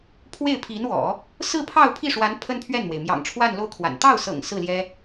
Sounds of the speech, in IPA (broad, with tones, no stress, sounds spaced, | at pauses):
pʰ w e˥˩ ɪ̯ pʰ i˧˥ n w ɔ̰˨˩˦ | s ɹ̩˥˧ pʰ ɑ˥˧ ʊ̯ pʰ i˥˩ ʂ w a˧˥ n pʰ ə˥ n pʰ ɥ ɛ˥˩ n m w e˩ ɪ̯ m j ɑ̰˨˩ ŋ ʈ͡ʂʰ w a˥˧ n l o˥˩ ʊ̯ kʰ w a̰˨˩ n t̪ ɑ˥˩ ʊ̯ s ɤ̰˨˩ ŋ s ɹ̩˥˩ l j ɛ˥